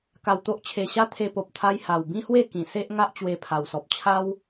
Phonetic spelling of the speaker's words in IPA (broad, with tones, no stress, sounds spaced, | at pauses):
k a˧ w t̪ o˦ ʔ t͡ɕʰ e˧ ɕ a˦ t̪ʰ e˧ p o˨ p̚ t̪ʰ a˧ j h a˨˩ w b ĩ˦ h w e˥˧ k ĩ˨˩ s e˦ ʔ ŋ a˦ ʔ t͡ɕ w e˧ pʰ a˨˩ w s ɔ˨ p̚ t͡ɕʰ a˦ w